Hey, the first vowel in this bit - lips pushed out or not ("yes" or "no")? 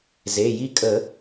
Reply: no